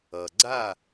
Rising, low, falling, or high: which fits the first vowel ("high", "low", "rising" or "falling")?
low